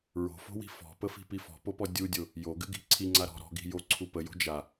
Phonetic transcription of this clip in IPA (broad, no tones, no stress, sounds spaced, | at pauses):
ɹ o̤ f o̤ w i̤ f ɔ̤ p ə f i̤ p i f ɔ̤ p o p ɔ dʲ u dʲ o | j o ɡ ɨ ɡ i̤ ǀʰ i ŋ͡ǀ a ɾ ɔ̤ ɾ ɔ̤ ɡ i̤ j o ǀʰ u p ə j o̤ d͡ʒ a